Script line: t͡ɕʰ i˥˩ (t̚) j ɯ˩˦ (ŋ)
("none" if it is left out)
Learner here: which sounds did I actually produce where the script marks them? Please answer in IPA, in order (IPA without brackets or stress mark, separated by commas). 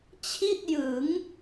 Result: t̚, ŋ